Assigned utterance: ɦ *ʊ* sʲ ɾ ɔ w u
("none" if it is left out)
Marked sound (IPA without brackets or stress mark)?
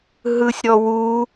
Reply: ɯ